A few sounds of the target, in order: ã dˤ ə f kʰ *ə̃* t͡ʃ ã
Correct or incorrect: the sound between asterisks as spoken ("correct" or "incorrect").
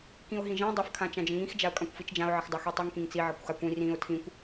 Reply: incorrect